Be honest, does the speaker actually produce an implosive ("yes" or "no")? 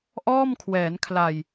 no